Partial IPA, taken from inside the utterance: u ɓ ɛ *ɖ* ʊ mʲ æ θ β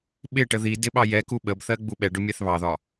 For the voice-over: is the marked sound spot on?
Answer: yes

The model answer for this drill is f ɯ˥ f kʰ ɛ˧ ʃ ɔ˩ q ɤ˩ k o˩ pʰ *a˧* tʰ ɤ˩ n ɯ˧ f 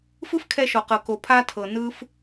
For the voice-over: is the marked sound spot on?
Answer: yes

